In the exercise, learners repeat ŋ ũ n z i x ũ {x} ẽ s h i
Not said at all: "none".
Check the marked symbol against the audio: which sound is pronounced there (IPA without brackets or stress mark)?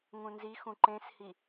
ǃ